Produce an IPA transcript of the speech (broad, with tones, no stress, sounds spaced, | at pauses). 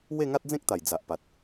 w e˥˧ ŋ a˦ t̚ d͡z ẽ˦ k̚ t̪ a˨˩ j d͡z a˨ ʔ p a˨ t̚